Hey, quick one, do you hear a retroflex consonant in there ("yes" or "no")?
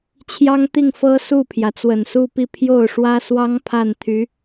yes